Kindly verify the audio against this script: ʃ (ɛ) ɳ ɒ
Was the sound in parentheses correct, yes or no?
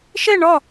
no